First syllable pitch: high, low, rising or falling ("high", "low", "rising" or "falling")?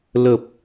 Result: low